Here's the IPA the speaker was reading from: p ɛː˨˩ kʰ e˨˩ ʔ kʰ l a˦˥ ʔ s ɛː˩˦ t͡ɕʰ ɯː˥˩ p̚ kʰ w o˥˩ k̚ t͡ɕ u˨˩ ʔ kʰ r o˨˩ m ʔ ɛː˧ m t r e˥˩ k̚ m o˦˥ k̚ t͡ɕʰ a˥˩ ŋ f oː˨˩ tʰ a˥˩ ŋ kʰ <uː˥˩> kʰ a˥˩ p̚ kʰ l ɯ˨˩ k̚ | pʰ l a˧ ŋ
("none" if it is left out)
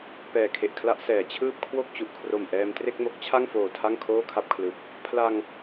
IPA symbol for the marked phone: oː˥˩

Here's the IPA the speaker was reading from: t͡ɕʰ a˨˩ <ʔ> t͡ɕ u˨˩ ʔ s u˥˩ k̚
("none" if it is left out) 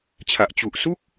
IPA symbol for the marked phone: ʔ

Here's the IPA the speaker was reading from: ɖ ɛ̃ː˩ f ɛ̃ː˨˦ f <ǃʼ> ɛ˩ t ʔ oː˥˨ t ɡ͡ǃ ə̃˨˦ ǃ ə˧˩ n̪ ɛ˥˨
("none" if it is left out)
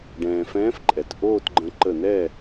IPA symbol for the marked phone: ǃʼ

